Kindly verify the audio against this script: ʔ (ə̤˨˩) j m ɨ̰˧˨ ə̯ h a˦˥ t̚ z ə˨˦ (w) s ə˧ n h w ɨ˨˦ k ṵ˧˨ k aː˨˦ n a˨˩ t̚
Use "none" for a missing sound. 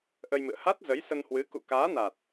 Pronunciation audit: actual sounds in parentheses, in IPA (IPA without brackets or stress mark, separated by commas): ə˧, j